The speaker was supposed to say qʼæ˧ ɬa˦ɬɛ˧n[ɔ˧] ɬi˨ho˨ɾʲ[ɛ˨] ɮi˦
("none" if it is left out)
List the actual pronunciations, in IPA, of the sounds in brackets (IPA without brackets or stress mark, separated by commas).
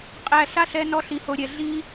ɔ˧, ɛ˨